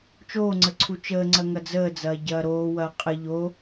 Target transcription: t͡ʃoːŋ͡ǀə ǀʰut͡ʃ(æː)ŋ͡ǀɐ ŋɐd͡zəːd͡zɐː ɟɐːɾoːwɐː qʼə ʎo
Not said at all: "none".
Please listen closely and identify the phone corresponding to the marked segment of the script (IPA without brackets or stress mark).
əː